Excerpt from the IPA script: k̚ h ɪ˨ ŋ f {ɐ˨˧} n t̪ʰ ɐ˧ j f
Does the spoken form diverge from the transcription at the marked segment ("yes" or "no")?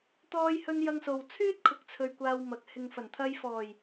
yes